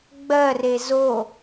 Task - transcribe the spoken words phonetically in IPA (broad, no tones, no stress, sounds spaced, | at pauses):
ɡ͡b ɜ r e z o